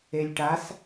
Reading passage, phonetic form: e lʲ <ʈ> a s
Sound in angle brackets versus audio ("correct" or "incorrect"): correct